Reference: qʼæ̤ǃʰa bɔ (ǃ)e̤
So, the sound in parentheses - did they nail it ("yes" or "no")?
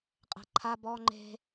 no